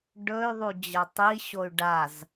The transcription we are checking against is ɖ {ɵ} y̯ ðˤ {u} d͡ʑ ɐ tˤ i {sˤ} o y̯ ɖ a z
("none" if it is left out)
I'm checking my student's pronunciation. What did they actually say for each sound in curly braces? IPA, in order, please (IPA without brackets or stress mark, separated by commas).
ɵ, u, ɕ